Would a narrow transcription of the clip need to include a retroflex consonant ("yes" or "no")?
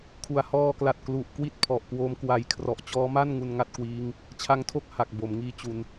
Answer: no